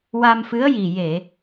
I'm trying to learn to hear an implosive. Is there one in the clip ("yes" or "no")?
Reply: no